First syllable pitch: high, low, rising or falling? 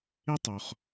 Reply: high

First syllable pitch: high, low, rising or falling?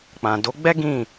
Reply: low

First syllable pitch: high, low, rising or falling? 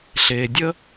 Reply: low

